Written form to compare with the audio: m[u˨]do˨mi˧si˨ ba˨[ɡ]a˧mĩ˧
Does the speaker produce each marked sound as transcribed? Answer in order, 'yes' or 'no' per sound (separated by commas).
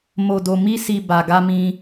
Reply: no, yes